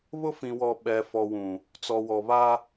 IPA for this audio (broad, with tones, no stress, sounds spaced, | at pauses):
β ʊ˦ f ĩ˨ w ɔ˨ ɓ ɛ˨ f ɔ˨ w ũ˨ | t͡s ɔ˨ w ɔ˨ β a˦